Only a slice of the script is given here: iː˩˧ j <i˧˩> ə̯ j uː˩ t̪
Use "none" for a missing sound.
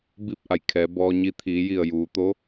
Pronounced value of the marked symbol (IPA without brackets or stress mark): i˧˩